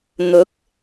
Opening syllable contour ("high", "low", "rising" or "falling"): rising